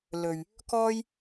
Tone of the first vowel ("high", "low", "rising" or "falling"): low